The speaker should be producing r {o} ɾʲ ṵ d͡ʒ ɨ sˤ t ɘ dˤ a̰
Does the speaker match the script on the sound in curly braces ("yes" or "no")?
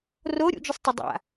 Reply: yes